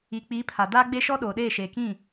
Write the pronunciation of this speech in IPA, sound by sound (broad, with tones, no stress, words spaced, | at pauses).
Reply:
i˨ k͡pi˨˦ pʰa˨ daː˦ɡ͡be˦ ʃɔ˦ɗoː˨ɗeː˦˨ʃeː˨ kĩ˦˨